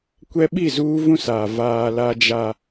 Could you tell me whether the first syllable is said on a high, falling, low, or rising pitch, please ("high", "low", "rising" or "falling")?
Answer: high